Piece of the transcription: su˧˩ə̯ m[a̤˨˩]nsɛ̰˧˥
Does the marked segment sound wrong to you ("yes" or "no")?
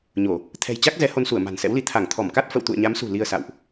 no